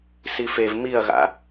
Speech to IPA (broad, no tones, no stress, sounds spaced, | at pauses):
s i f e v m i ɐ̯ ɣ a̰